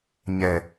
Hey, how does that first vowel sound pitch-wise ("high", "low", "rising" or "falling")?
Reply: low